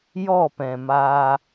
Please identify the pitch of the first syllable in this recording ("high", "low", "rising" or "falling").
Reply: falling